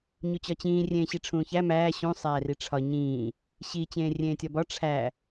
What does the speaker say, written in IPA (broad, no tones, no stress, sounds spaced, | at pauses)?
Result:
ɲ u t͡ɕ ɒ t͡ɕ ĩː rʲ ẽː ɕ i ʈ͡ʂʰ ũː ç æ m æː ɕ ũ sˤ æː r i ʈ͡ʂʰ ɒ ɲ ĩː | ɕ i t͡ɕ ẽː rʲ ẽː tʲ ɒ b ɒ ʈ͡ʂʰ æ